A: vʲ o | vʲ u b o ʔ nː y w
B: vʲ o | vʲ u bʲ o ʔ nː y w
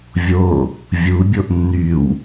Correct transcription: B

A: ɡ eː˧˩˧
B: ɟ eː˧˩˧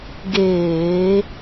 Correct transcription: A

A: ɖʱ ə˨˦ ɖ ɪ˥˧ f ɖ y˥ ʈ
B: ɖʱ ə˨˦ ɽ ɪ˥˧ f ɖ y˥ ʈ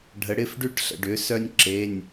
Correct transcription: B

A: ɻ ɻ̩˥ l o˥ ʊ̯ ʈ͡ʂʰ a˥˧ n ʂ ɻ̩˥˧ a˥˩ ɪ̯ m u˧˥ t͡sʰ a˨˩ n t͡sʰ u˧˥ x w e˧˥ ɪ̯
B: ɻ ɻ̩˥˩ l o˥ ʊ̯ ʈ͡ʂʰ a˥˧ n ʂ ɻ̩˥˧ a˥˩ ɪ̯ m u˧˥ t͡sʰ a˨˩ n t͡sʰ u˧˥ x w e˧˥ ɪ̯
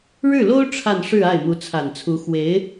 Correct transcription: B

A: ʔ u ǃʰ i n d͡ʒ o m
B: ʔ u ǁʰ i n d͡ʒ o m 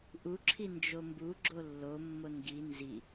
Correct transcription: B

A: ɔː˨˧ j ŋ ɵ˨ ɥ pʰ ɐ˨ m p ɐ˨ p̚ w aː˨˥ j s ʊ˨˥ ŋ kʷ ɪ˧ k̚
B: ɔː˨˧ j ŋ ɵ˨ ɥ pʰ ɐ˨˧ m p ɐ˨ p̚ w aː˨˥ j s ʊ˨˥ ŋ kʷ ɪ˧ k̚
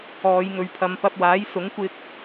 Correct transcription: B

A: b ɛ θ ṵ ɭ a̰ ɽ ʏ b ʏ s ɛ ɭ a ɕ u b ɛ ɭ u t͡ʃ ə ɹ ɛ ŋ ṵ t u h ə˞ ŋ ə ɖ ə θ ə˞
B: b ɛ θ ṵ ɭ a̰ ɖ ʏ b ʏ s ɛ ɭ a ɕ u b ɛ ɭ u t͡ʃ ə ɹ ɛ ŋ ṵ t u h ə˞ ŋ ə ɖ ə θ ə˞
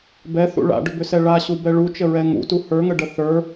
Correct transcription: B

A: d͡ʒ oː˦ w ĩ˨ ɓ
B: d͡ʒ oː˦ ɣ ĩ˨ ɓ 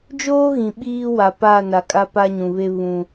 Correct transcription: B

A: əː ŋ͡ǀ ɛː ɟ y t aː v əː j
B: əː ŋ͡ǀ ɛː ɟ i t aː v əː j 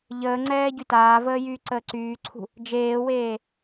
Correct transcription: A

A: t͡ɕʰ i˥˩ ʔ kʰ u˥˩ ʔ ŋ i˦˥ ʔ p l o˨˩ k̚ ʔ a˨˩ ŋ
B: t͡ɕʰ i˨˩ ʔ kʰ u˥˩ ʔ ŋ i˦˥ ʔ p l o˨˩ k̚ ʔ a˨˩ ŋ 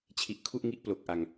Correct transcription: B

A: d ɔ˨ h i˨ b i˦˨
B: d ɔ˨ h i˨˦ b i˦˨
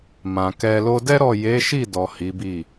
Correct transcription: B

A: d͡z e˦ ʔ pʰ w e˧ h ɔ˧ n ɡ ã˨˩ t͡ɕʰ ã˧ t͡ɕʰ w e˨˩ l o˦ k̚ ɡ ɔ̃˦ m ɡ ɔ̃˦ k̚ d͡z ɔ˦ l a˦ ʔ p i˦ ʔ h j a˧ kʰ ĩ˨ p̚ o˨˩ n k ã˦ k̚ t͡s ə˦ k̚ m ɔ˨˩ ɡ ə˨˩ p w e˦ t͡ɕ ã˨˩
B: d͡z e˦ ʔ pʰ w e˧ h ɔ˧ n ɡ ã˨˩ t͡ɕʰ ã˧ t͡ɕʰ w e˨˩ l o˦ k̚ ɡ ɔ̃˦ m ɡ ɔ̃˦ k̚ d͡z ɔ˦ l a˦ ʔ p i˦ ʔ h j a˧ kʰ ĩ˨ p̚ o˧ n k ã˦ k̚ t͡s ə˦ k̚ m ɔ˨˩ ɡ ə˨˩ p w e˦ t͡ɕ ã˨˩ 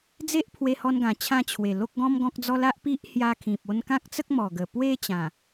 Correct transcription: B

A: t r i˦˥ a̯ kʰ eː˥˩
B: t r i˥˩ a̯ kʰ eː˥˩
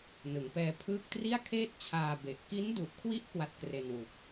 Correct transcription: B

